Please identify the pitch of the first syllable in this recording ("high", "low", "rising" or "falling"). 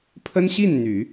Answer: high